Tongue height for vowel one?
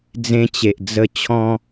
mid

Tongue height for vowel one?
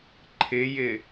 high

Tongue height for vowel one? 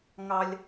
low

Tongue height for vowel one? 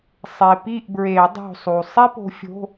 mid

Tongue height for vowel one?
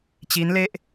high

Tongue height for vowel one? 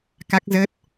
low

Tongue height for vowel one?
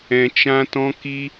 mid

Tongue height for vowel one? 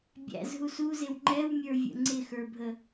low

